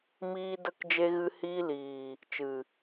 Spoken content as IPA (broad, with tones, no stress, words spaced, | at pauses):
miː˦də˦k d͡ʒe˧ɣɨ˧hiː˧liː˨ | t͡ʃɨ˨